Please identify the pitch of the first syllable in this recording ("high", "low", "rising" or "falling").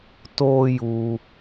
high